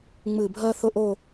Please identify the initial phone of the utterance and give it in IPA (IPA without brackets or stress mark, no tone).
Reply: ŋ͡m